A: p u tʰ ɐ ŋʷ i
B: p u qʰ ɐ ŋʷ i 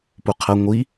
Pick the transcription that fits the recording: B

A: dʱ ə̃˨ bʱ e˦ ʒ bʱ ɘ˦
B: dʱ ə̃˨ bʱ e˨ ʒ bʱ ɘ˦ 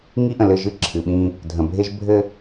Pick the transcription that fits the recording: A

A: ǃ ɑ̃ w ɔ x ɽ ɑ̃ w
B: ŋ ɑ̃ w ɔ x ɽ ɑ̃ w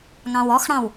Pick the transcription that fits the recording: B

